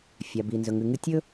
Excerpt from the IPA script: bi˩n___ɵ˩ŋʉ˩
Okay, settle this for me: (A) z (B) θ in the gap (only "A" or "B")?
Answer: A